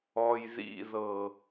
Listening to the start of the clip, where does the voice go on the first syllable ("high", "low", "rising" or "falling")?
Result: low